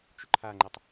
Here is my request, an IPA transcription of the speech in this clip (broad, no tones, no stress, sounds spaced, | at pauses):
t͡ʃ ʏ ǃʰ a ŋ͡ǃ e tˤ